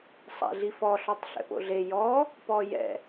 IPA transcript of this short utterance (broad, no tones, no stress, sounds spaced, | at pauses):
sˤ a̰ ɮ i f ɔ ɬ ɔ tˤ ɬ ɛ̰ p o̰ ɮ e j ɔ | p ɔ j ɛ̰